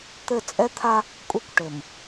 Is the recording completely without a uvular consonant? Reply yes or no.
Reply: yes